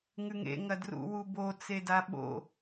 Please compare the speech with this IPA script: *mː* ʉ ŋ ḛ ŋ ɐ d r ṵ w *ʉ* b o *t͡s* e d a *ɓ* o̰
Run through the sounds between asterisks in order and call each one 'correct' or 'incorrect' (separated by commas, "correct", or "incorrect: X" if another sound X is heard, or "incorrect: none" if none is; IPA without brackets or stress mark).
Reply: incorrect: ŋ, incorrect: u, correct, correct